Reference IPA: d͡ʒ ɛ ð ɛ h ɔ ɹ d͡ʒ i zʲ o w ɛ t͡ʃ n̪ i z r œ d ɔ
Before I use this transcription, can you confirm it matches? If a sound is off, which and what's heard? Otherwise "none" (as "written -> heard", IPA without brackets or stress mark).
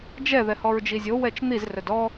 none